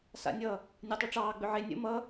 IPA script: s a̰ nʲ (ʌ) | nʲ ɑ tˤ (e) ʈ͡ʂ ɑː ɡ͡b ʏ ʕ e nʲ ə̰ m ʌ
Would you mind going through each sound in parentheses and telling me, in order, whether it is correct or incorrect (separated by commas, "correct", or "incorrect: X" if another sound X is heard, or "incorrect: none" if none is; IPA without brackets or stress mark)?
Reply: correct, correct